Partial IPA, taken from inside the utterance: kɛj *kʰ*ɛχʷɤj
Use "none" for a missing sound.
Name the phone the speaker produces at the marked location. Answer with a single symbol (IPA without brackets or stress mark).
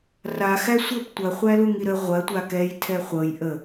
tʰ